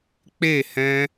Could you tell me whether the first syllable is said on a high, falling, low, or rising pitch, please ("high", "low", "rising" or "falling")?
falling